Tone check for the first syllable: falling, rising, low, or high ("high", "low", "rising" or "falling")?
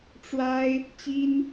high